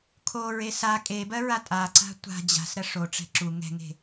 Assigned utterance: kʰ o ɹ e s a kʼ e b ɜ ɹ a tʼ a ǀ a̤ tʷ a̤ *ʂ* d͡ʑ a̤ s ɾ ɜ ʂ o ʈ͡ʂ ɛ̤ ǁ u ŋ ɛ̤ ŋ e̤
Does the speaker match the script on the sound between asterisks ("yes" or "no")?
no